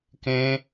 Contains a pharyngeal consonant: no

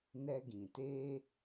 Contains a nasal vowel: yes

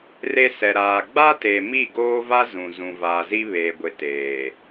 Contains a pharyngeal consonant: no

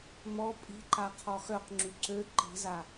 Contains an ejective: yes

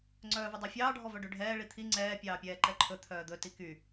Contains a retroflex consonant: yes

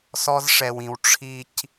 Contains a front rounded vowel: no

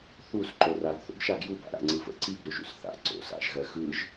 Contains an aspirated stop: no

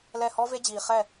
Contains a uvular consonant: yes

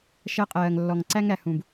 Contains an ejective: yes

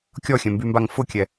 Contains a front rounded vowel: yes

